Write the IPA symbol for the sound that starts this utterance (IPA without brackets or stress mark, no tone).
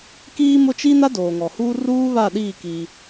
k